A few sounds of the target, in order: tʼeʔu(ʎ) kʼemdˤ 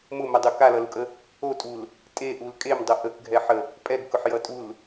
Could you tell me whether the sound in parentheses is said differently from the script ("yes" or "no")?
yes